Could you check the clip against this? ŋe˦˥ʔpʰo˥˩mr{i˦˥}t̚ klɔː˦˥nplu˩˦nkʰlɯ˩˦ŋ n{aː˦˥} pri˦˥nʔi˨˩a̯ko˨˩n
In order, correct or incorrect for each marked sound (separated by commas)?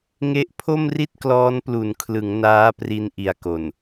incorrect, correct